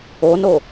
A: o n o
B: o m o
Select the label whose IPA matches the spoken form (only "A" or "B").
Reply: A